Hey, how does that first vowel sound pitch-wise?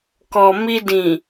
low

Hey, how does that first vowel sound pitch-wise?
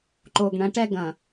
low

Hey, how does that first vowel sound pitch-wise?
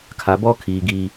low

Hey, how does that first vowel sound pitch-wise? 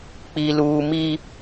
high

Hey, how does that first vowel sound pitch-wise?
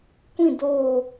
falling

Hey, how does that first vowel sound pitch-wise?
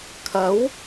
rising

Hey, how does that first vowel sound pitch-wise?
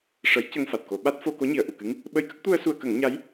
rising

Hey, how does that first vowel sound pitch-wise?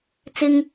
high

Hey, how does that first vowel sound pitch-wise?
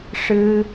high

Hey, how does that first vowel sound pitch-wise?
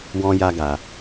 high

